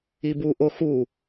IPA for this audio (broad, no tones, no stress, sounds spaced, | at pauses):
i b u ʔ o x u